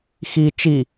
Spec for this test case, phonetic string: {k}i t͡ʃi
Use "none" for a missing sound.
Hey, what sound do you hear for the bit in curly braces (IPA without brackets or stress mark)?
x